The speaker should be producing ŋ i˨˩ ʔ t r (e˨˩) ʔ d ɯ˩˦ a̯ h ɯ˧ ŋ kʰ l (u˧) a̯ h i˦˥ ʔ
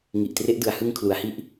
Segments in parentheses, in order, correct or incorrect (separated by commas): incorrect, incorrect